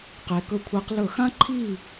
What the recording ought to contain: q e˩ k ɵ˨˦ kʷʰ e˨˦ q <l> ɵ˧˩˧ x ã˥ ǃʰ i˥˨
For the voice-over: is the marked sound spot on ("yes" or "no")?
yes